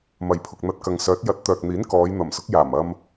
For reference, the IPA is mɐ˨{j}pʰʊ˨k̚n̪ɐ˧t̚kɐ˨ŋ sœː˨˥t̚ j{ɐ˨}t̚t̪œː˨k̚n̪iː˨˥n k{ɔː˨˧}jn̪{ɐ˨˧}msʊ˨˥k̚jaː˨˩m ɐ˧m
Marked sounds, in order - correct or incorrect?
correct, incorrect: ɐ˨˥, correct, incorrect: ɐ˨˩

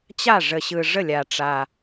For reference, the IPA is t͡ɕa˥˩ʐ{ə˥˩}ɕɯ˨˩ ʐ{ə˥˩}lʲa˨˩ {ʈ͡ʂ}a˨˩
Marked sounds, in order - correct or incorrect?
incorrect: ə˨˩, correct, correct

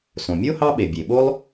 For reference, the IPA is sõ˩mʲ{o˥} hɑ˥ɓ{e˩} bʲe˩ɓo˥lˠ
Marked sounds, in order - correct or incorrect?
correct, correct

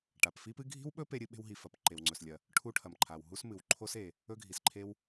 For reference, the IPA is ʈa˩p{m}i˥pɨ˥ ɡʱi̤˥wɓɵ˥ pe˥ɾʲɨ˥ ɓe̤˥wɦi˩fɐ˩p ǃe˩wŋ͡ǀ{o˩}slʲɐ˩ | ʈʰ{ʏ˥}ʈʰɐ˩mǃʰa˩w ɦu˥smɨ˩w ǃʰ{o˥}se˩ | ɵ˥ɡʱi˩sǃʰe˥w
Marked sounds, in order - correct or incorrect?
incorrect: f, incorrect: ɵ˩, incorrect: u˥, correct

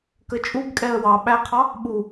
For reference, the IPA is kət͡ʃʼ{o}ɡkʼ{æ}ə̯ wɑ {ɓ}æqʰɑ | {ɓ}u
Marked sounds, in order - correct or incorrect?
incorrect: u, incorrect: ɛ, correct, correct

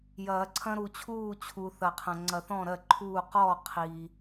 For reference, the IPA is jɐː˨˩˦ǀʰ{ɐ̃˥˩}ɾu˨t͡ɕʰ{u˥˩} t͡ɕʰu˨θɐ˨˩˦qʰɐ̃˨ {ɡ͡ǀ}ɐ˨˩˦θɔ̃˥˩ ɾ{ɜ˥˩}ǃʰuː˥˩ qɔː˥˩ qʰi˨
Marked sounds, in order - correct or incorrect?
incorrect: ɐ̃˦, incorrect: uː˥˩, incorrect: ŋ͡ǀ, correct

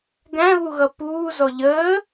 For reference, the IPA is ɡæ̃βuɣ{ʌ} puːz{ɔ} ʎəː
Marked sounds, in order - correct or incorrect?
correct, correct

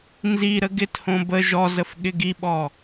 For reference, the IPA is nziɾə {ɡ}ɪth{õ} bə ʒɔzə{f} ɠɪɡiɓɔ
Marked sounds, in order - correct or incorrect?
correct, correct, correct

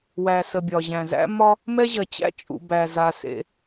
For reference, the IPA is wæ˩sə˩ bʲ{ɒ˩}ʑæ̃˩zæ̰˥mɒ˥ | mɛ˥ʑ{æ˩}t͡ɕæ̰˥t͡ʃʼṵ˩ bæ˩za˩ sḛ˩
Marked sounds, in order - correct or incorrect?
correct, incorrect: ɐ˩

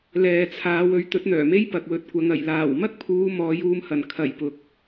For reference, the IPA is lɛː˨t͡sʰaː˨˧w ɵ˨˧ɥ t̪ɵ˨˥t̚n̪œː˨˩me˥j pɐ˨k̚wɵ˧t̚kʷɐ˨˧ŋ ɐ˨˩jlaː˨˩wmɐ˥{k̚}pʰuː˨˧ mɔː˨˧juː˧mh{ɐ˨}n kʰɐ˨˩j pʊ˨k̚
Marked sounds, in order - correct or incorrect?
correct, incorrect: ɐ˨˩

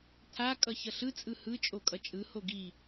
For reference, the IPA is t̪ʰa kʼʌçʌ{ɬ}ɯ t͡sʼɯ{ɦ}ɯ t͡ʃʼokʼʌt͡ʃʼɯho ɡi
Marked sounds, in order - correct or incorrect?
correct, incorrect: h

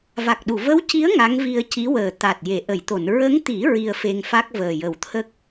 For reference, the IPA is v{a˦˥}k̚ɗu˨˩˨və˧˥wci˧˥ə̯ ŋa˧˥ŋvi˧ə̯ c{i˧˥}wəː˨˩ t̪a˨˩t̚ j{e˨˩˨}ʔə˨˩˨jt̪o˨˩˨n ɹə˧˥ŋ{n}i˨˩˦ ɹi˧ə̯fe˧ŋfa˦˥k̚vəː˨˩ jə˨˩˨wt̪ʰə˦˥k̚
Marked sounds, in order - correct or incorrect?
incorrect: a˨˩, correct, correct, incorrect: t̪

